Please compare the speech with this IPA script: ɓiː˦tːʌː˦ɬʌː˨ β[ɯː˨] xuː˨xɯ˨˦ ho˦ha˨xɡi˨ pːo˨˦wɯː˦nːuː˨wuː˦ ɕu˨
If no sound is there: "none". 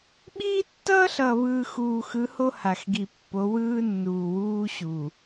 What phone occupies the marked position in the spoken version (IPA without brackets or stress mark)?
ɯː˨